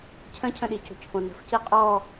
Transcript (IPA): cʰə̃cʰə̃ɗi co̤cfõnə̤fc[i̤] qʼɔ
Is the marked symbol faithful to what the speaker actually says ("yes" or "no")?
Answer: no